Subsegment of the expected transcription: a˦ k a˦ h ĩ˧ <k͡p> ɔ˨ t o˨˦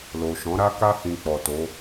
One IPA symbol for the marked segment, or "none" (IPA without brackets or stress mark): k͡p